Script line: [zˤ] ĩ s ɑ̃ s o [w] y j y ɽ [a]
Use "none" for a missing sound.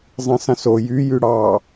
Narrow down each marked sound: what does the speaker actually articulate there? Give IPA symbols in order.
zˤ, j, ɑ

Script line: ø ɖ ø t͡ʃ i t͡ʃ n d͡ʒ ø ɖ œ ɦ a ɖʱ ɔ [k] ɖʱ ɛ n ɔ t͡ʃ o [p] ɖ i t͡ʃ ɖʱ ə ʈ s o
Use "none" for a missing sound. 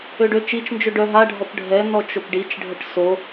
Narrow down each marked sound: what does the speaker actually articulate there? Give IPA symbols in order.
p, p

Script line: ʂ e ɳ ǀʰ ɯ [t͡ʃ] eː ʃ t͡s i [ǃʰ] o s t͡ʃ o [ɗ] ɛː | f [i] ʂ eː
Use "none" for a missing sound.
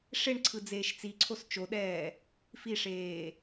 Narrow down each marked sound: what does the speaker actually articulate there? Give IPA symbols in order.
d͡z, ǀʰ, ɗ, i

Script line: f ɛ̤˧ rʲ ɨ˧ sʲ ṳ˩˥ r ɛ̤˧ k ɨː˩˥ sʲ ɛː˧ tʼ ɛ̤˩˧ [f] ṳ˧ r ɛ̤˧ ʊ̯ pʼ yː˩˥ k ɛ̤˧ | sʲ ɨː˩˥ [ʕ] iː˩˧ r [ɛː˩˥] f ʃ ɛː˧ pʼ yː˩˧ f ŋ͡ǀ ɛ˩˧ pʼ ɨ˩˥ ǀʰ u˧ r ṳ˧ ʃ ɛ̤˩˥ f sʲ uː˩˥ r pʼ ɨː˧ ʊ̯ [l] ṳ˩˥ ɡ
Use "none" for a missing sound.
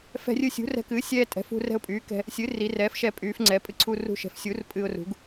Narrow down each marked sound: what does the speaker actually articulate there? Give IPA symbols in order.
f, r, ɛː˩˥, r

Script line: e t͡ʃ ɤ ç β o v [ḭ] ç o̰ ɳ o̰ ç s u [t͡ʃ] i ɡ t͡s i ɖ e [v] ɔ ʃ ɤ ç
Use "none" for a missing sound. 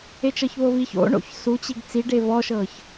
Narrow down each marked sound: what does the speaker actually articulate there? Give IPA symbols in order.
i, t͡ɕ, v

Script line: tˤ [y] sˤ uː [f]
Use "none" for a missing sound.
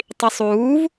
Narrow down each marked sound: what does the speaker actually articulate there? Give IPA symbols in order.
i, v

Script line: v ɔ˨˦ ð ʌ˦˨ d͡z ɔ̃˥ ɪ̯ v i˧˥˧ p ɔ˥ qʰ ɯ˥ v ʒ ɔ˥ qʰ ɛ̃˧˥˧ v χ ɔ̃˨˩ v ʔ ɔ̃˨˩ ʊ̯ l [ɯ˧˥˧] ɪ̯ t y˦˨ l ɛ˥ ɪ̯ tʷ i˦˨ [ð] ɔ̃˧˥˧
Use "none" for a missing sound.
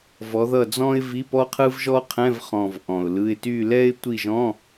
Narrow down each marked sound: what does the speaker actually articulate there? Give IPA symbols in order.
ɯ˧˥˧, ʒ

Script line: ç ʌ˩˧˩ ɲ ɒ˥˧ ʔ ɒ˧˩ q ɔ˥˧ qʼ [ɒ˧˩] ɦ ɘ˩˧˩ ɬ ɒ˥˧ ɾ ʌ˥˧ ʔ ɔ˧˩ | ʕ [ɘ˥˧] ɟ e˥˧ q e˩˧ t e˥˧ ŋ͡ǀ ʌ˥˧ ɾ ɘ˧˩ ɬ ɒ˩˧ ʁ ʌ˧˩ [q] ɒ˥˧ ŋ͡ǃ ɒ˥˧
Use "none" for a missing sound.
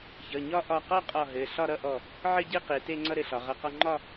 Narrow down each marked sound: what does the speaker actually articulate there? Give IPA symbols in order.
ɒ˧˩, ɘ˥˧, q

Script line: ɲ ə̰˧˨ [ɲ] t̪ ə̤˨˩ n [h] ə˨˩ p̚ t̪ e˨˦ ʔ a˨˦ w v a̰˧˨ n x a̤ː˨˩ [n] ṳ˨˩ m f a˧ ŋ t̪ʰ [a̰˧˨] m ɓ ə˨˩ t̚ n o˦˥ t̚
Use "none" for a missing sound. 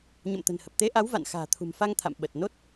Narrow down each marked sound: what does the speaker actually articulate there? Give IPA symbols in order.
m, h, t̪ʰ, a̰˧˨

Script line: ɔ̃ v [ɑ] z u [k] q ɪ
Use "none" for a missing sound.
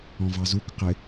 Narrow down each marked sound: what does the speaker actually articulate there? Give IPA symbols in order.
ɑ, k

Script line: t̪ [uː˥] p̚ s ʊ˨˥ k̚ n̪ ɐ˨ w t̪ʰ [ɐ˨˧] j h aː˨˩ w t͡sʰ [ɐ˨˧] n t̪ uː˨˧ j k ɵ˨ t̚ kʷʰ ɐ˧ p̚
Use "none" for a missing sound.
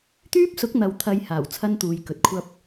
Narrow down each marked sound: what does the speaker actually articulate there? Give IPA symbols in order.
yː˥, ɐ˨˧, ɐ˥

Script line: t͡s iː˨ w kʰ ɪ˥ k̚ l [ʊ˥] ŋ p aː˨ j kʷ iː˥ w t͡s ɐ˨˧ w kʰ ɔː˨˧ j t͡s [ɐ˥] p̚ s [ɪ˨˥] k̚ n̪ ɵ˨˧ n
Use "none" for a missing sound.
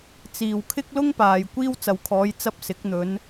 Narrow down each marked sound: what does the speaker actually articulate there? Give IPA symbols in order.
ʊ˥, ɐ˥, ɪ˨˥

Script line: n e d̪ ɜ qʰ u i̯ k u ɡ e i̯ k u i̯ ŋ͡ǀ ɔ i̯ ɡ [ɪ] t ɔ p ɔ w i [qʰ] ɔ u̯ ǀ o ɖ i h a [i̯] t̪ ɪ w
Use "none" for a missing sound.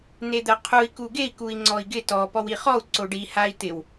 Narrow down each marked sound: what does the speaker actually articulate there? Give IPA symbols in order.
ɪ, χ, i̯

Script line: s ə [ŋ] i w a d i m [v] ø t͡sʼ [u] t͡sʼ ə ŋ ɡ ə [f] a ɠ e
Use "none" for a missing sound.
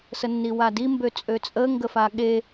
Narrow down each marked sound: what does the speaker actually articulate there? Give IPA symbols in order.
nː, b, ø, f

